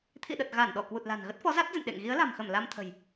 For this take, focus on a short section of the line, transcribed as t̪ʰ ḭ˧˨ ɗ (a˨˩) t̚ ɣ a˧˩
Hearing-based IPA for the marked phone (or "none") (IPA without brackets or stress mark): ə˨˩